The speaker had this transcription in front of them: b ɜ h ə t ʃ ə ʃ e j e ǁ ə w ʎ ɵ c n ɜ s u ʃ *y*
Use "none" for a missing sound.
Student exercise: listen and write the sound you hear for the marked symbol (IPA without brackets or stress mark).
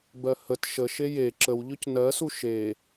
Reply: e